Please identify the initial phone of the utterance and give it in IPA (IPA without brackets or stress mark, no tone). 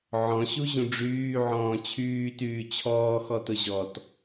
ʕ